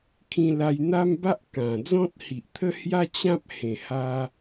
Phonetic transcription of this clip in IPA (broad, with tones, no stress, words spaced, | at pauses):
kʰĩ˧ la˧jn̪a˦mba˦ʔ kã˨˩ d͡zɔ̃˦t̚hi˨ʔt̪ʰə˦ hja˦t͡ɕã˦p̚ hẽ˨˩ha˧